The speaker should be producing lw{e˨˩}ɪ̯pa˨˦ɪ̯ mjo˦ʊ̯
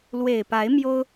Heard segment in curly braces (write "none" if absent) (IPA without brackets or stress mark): e˨˩